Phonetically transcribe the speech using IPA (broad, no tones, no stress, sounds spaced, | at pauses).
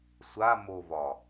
sʷ a m o v ɒ